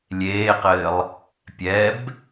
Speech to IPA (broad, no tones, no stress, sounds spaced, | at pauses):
lʲ eː q ɘː lˠ | pʲ ɛ b